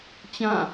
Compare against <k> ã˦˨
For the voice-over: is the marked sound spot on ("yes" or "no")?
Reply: no